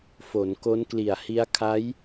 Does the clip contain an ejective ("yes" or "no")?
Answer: no